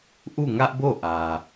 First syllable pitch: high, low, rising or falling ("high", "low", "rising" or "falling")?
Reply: falling